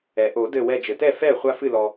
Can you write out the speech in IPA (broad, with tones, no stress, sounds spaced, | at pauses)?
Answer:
ɛ˩ ʔ o˨˩˦ d ɘ˧˩ w ɛ˧˩ d͡ʒ ɘ˩ t ɛ˥˩ f ɛ˥˩ χʷ a˧ f ɨ˧˩ l ɔ˩